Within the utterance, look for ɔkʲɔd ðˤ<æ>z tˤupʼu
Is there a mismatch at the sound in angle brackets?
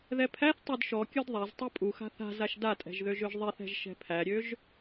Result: yes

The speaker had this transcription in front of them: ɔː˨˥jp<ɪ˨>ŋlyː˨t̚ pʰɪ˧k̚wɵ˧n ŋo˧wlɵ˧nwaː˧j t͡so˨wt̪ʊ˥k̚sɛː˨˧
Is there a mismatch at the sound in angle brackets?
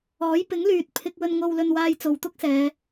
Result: yes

